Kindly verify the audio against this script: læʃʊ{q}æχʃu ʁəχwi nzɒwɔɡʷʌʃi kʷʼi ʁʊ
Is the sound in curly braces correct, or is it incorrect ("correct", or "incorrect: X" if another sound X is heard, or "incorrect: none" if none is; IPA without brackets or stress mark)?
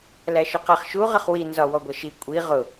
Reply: correct